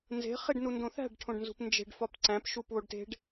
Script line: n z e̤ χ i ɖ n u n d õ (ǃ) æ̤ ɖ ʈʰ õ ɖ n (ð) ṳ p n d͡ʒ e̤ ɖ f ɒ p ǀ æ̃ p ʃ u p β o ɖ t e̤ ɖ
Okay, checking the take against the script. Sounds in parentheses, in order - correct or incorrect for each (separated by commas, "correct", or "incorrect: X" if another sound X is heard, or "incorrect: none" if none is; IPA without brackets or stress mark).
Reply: incorrect: θ, incorrect: z